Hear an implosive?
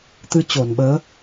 yes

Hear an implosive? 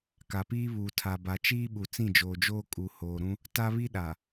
yes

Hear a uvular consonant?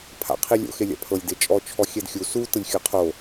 yes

